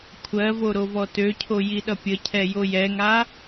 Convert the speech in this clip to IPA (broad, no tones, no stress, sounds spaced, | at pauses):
kʷʰ ɜ v o ɾ o v ɔ t ø cʰ o j i ɗ ʌ pʲ ə cʰ ɛ j o j ɛ ŋ a